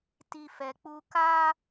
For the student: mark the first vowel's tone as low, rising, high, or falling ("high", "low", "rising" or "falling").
high